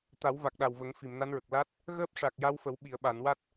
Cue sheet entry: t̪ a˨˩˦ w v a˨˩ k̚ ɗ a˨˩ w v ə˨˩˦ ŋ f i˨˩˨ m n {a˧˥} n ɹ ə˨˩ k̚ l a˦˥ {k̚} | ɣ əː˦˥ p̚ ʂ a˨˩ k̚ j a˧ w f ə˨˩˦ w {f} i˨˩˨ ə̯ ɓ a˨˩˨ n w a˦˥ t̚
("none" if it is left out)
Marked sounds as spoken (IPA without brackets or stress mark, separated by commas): a˧˥, t̚, ɓ